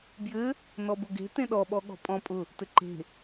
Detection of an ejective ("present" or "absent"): present